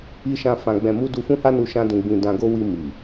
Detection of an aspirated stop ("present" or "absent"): absent